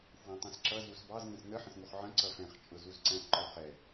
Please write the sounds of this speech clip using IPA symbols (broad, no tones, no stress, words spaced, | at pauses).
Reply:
fwæ̃tˤɛ̃sǁʌ zusbɑz ŋə̃snə ħə̃sŋuχʕə̃ ǀʌfɛ̃χ t͡ʃʼʊzuzǀæ̃ʔ ǃɔχɛ